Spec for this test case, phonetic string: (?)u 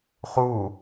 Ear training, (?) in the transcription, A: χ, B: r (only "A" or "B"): A